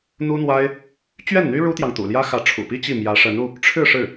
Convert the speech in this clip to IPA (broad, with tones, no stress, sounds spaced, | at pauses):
n̪ u˥ n̪ w a˥ ɪ̯ | t͡ɕ ɥ ɛ˥˩ n n̪ y˥ ɻ u˥ t̪ j ɑ˨ ŋ t̪ ṵ˨˩ l j ä˥ x ä˧˥ ʈ͡ʂʰ ṵ˨˩ p i˥ t͡ɕ i˥˩ m j ä˧˥ ʂ ə˧˥ n u˧ | ʈ͡ʂʰ ɻ̩˥˧ ʂ ɻ̩˥˩